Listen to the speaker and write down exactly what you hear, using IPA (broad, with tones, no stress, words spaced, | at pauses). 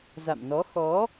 za̰˧˨mnɔ˨˦ xɔ˨˦